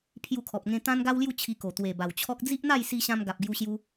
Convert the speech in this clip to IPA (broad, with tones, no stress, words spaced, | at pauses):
pʰju˧kʰɔ˨p̚ŋẽ˧ t̪ã˦nɡa˦wlju˥˧ t͡ɕʰi˧ ko˨˩t̪we˨˩ba˨˩wt͡ɕʰɔ˦k̚ d͡zi˦ʔn̪a˥˧jsi˧ ɕã˧mɡa˨p̚ɡju˧ɕju˧